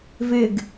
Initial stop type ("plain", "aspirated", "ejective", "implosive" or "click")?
plain